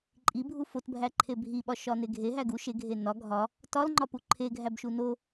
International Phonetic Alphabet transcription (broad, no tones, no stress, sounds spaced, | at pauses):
ǃʼ i bʱ u f o t bʱ æ ǃʰ e bʱ i ɓ ɒ ʃ ɒ n e ɡʱ e ɦ æ ɡ u ʃ e ɡʱ e n ɒ ɡʱ ɒ | t ɒ l ŋ͡ǃ ɒ p u ǃʰ e ɡʱ æ b ʃ u n o